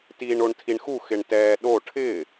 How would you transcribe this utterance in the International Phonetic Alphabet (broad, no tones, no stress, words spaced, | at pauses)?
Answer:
tiːɳoɳtʰiɳxu xɪɳtɛːɗo ʈʰɪː